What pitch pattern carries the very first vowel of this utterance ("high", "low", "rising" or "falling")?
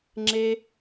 high